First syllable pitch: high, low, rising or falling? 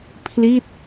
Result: falling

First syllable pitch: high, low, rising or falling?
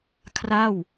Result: falling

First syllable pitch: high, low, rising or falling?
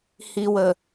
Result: low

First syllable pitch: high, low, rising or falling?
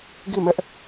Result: falling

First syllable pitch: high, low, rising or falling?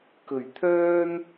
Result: low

